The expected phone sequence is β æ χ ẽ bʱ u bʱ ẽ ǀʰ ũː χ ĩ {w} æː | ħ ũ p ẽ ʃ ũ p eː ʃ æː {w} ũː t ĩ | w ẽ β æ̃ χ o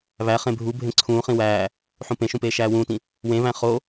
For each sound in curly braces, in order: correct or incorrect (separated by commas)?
correct, correct